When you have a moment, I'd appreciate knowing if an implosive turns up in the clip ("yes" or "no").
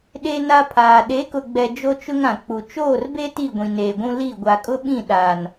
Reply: yes